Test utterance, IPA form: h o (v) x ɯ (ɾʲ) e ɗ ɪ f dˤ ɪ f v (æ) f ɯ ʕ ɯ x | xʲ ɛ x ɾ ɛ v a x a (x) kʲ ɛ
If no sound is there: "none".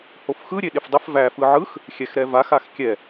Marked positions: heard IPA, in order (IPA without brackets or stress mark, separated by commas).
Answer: f, ɾʲ, æ, x